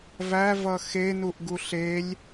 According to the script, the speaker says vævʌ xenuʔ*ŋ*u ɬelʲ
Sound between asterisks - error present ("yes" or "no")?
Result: yes